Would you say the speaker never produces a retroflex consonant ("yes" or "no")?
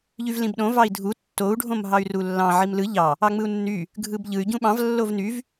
no